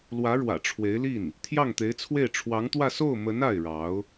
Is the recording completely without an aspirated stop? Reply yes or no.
no